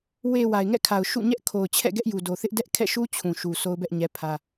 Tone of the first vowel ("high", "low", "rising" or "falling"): low